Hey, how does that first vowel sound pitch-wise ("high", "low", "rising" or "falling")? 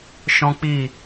high